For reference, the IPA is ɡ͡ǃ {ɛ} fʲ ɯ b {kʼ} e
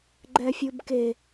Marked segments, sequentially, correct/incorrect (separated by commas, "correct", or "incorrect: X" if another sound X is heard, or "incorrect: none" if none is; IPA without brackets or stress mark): correct, incorrect: k